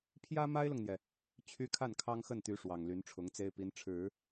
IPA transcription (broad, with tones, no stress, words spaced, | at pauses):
pʰjä˥ma˥ɪ̯lʊ˨ŋn̪jɛ˩ | t͡ɕʰy˥ kʰa˥˩nkʰɑ˥ŋxə˥˩nt̪y˧˥ ʂwɑ˨˩ŋly˧˥nʈ͡ʂʰʊ˧˥ŋt͡se˥ɪ̯ pi˧˥nʈ͡ʂʰɻ̩˨˩˦